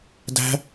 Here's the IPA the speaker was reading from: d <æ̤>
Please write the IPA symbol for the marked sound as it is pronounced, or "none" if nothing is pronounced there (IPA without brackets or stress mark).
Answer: æ̤